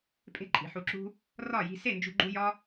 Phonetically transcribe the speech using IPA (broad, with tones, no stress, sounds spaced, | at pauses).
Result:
pʼ e̤˧ ǃʼ i̤˨ ħ u˧ ǁ ṳ˦ | r ɒ˦˨ j i̤˧ s e˦˨ n d͡ʒ ṳ˧ ɡ͡ǃ u˧ j ɒ˦